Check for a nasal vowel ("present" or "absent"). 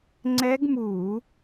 absent